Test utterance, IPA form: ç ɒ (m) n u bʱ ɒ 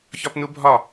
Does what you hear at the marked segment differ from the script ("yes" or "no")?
yes